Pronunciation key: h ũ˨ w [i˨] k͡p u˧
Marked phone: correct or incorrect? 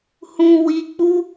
correct